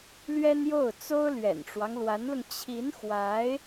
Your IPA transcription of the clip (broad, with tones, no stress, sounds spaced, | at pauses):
l ɥ ɛ˥ n j o˥˩ ʊ̯ t͡s o˥ ʊ̯ l ɥ ɛ̰˨˩ n ʈ͡ʂ w ɑ˦ ŋ l w a˧˥ n l ʊ˧ ŋ t͡ɕʰ i˧˥ n x w a˧˥ ɪ̯